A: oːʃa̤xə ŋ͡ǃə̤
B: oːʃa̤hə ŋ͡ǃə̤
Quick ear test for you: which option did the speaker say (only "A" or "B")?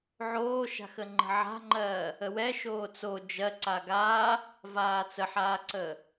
A